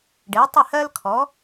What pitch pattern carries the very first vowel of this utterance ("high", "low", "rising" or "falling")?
rising